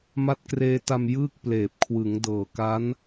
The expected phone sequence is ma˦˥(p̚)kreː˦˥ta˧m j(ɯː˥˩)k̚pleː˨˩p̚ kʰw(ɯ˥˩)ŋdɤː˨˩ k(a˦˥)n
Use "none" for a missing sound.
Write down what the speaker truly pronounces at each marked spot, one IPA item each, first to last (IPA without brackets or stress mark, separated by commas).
t̚, ɯː˥˩, ɯ˩˦, a˦˥